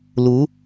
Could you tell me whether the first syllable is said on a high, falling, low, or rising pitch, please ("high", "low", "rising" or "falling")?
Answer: rising